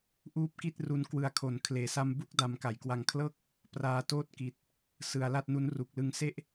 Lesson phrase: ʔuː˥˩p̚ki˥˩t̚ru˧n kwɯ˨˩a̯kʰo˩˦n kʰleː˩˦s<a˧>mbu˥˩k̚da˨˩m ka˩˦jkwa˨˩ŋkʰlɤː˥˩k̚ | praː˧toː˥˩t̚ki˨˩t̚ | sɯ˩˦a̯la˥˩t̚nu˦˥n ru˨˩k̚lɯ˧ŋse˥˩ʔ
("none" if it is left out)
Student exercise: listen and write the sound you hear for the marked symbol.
a˧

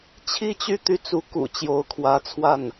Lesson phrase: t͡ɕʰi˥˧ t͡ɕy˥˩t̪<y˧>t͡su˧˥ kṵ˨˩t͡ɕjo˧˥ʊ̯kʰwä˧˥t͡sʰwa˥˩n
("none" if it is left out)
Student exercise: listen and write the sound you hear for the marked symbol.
y˥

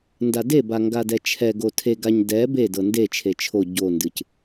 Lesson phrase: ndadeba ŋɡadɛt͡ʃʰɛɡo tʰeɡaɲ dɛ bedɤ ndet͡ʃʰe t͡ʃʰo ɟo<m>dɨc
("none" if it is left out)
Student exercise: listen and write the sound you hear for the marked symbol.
n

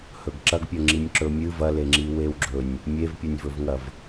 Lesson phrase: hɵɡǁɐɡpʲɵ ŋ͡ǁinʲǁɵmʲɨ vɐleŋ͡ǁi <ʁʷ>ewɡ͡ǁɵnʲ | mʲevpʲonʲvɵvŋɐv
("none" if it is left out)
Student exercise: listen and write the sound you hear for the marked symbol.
w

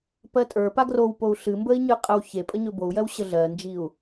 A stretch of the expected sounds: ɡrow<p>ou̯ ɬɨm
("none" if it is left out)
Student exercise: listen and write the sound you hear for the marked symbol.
p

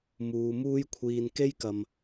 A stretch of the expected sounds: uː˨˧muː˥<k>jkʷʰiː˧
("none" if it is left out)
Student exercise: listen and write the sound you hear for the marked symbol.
none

